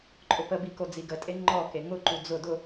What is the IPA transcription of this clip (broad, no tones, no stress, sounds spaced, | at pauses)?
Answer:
ǃʼ ʊ p ə b i k o d͡z i ɡ ə tʼ e ŋ͡ǃ ɔ k e ŋ ʊ ǃ u d͡z ʊ d ʊ